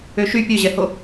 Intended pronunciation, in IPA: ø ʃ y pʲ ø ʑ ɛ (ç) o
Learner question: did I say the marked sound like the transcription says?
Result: no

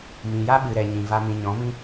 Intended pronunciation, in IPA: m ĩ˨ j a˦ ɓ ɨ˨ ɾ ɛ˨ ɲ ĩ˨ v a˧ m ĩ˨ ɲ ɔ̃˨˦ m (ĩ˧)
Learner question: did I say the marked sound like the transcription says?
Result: no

